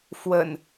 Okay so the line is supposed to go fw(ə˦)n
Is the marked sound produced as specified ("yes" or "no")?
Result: no